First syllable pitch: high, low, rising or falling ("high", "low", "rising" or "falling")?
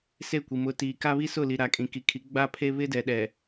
falling